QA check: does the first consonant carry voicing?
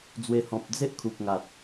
yes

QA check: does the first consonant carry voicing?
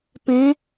no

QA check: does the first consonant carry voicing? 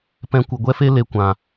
no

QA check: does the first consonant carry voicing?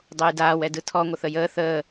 yes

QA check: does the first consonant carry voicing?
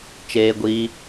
no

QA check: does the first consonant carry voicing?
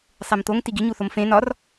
no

